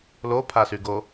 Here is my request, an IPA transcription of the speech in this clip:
l o pʰ a s y ɡ o

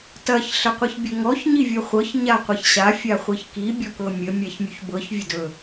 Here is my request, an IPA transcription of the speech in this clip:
t ɐ ç ɬ ə qʷ i ç bʲ ɵ ŋ ɔ ç ɲ i vʲ ɤ χʷ ɤ ç ɲ a qʷ ɐ ç ɕ a fʲ a χʷ i ç k i bʲ ɔ k ɤ mʲ ə mʲ a ç mʲ u ç b ɤ ç vʲ ɵ d ɵ

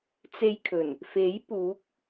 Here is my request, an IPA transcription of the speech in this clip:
t͡s e˧ j kʰ ɵ˨˩ n | f e˨˥ j p uː˨˥ k̚

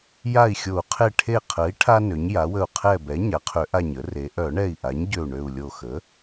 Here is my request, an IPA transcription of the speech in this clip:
j a˧˩ i̯ xʲ o˨˩˦ u̯ qʰ e˧˩ ʈʰ e˧˩ qʰ ə˩˥ i̯ ʈʰ a˥ n ø˩˥ ɲ j a˩˥ w ə˧˩ u̯ qʰ ɛ˧˩ b ɛ˩˥ ɲ a˩˥ qʰ ø˨˩˦ ʔ a˧˩ ɲ ə˩˥ r e˩˥ ʔ œ˨˩˦ ɳ ɛ˧˩ i̯ ʔ a˩˥ ɲ ɟ ø˧˩ u̯ ɳ ø˧˩ u̯ lʲ o˧˩ x ə˩˥

